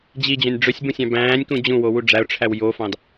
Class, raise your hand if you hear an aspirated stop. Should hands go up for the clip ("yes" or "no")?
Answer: yes